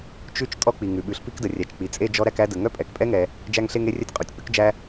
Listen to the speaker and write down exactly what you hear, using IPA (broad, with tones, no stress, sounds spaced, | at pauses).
t͡ʃ ʉ˥ t͡ʃ tʼ ɔ˥ k͡p i˩ ŋ ʉ˩ ɓ ʉ˩ ɬ p i˥ k d ə˩ rʲ æ˩ t͡ʃ k͡p i˩ t͡sʼ e˥ d͡ʒ ɔ˥ ɾ æ˥ k æ˥ d ə˩ ŋ œ˥ pʼ ɛ˩ k pʼ ɛ˥ ŋ ɛ˩ | d͡ʒ æ˥ ŋ ɬ e˥ ŋ e˥ rʲ œ˥ tʲ qʼ u˩ tʲ k͡p ʉ˥ k d͡ʒ æ˥